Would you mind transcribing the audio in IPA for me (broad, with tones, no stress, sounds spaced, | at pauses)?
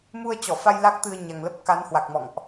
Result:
m u˧ ə̯ t͡ɕ ɔ˧˩ f a˧ j l a˦˥ k̚ t̪ ɨ˧ ə̯ ɲ a˨˩ ŋ l ə˦˥ p̚ k a˨˦ n h w a˨˩ k̚ m ɔ̰˧˨ ŋ ʔ